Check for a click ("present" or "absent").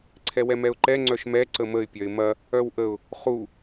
present